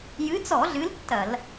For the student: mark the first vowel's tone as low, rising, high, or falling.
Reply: rising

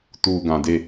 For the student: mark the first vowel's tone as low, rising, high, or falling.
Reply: low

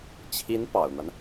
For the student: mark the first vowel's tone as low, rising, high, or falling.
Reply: rising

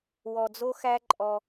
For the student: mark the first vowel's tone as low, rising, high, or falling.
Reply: low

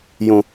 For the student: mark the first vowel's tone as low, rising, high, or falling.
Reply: high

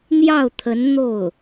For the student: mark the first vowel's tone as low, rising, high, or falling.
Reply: falling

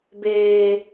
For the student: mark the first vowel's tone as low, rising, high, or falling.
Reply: low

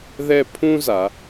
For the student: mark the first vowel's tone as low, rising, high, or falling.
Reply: falling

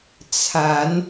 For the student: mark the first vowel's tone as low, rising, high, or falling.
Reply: rising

